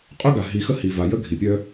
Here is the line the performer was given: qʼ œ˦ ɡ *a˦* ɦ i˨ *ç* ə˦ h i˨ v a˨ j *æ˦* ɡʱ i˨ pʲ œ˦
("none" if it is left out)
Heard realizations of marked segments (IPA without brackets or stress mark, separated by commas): a˨, x, ə˦